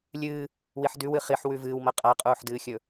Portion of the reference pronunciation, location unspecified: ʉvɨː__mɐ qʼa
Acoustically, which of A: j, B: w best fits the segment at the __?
B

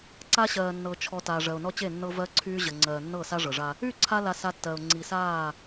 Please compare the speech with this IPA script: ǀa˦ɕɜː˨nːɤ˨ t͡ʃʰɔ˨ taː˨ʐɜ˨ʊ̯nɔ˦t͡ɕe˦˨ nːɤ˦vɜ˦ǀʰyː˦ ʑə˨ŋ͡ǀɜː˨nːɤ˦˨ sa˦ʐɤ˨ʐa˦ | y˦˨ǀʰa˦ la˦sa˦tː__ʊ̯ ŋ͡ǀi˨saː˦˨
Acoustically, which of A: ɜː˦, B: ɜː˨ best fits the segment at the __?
B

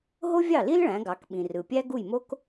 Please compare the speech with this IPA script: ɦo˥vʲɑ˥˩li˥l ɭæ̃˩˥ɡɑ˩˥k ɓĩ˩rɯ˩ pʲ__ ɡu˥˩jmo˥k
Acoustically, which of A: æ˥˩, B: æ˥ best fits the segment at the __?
B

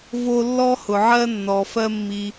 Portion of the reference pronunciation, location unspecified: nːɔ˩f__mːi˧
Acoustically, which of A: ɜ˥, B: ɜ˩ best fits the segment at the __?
A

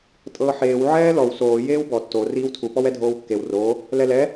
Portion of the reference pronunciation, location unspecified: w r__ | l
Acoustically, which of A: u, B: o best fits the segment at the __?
B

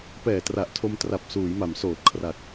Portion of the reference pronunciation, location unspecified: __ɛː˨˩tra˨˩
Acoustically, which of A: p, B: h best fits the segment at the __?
A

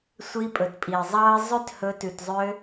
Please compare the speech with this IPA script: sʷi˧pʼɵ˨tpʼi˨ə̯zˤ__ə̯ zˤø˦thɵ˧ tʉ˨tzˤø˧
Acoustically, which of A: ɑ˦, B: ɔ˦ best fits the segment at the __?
A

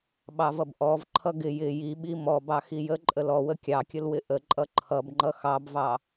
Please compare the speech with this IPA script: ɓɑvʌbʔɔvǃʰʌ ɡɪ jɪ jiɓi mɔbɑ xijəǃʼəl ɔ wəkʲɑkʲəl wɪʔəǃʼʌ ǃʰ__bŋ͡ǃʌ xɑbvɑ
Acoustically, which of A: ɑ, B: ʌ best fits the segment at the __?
B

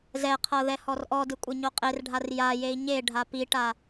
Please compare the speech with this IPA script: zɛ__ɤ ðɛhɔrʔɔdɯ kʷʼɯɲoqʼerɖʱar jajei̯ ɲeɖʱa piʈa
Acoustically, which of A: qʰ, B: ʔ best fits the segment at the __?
A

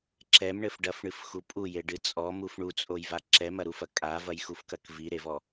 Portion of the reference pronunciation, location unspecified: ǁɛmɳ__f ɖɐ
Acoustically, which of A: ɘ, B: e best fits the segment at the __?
A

